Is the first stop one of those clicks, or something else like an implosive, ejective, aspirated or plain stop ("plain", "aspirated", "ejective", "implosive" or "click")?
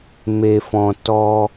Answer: plain